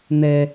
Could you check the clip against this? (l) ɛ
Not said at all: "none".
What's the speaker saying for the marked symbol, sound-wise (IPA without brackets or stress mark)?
n̪